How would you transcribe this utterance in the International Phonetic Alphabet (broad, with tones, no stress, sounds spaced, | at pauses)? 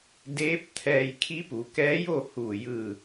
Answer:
d eː˧˥ p̚ t̪ʰ ɛː˧ j kʰ i˧˥ p u˩˧ k ɛː˧˥ j o˥˨ h uː˧˩ j ɯː˧˩